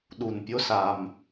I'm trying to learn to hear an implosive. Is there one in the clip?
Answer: yes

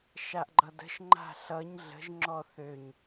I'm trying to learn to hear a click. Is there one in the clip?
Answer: yes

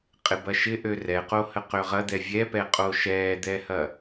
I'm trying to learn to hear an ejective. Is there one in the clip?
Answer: yes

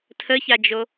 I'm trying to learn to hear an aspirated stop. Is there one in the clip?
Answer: yes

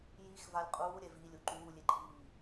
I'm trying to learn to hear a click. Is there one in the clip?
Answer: yes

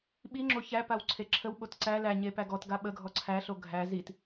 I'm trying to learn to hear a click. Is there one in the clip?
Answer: yes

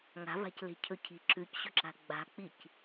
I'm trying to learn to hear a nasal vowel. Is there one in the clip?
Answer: no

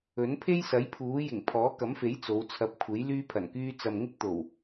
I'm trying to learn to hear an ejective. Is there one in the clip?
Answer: no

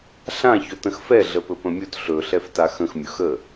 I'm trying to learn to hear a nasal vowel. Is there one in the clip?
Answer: yes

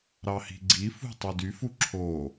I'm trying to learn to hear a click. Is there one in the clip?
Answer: yes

